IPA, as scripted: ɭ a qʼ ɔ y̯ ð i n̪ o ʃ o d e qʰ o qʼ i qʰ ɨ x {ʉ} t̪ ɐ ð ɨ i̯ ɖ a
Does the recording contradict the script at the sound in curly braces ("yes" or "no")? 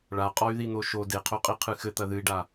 yes